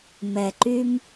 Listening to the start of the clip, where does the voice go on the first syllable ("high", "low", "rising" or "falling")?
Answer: low